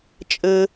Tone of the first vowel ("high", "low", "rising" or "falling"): high